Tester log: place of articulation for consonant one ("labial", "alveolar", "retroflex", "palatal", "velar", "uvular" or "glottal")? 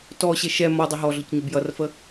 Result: alveolar